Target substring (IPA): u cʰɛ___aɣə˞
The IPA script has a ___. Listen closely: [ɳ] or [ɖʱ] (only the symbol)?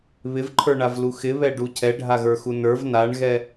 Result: ɖʱ